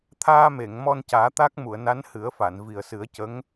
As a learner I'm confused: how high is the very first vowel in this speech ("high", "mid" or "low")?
low